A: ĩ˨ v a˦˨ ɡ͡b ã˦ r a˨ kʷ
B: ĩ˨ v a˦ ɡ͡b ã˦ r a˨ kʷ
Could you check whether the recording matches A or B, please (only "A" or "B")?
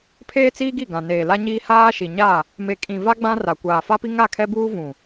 B